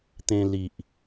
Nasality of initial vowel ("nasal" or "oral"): nasal